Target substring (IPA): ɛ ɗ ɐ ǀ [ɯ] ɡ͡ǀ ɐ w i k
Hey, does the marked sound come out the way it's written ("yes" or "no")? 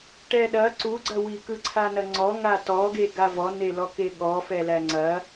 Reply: no